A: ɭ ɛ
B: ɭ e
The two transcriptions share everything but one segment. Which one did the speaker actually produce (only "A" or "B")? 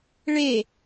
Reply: B